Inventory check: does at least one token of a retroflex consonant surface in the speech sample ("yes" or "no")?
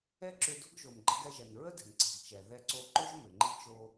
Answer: no